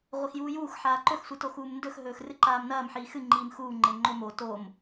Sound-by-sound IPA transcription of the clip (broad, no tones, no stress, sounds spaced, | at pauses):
ʁʷ e x j uː j uː x ħ aː ǃ ɵ x sʷ ɨ t o x uː m n d ɵ x ɦ ɵː x r ɨ ǃ aː m n ɐː m ħ iː x ɨ ŋ͡ǃ iː m x uː ŋ͡ǃ e ŋ͡ǃ o m o t o m